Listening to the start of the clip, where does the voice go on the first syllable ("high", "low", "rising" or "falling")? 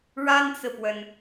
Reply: high